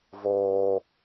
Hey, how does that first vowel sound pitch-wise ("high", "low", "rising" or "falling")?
high